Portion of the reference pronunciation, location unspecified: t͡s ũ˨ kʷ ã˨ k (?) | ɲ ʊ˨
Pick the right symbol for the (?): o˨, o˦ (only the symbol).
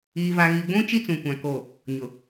o˨